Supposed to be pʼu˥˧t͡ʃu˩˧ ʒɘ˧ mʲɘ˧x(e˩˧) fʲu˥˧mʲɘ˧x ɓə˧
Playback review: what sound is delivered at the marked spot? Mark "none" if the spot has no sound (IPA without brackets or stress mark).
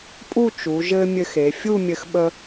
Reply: e˩˧